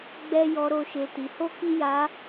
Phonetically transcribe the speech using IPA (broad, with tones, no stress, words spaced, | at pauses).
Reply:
ɡ͡bɛ˦ jɔ˧ɾo˧ʃe˧ ti˧ho˦ki˦ ja˧